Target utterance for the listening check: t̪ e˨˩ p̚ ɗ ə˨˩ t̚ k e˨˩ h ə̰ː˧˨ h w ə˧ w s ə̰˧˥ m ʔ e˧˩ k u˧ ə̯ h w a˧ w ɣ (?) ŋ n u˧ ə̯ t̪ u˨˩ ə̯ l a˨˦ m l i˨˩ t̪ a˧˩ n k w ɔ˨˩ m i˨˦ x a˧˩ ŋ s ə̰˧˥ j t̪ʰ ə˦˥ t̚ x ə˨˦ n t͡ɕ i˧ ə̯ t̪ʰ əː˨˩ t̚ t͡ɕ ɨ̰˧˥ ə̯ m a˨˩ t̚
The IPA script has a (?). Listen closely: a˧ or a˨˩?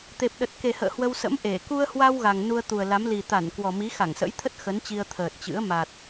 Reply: a˨˩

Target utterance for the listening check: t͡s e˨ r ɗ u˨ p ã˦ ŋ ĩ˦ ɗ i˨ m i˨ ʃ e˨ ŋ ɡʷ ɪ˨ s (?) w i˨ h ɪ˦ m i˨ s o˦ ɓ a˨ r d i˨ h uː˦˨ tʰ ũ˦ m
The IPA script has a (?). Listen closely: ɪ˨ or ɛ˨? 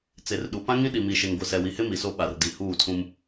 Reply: ɛ˨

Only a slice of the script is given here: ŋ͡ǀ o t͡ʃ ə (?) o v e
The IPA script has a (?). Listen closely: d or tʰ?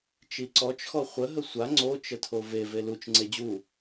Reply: tʰ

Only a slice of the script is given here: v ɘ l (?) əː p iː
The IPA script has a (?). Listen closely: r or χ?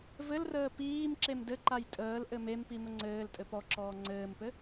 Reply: r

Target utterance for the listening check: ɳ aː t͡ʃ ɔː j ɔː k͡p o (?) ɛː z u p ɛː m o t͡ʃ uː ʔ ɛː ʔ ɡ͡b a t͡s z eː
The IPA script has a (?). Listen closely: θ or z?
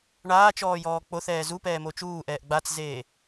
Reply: θ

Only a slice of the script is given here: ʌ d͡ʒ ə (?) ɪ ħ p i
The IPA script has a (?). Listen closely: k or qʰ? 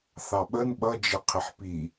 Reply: qʰ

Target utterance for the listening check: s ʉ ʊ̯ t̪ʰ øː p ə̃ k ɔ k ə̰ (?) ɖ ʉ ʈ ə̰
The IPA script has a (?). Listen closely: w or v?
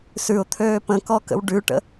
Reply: w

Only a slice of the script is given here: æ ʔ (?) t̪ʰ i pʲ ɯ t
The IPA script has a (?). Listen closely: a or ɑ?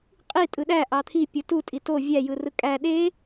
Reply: ɑ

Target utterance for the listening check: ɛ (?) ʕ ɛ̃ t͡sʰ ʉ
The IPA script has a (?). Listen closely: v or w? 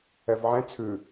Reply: v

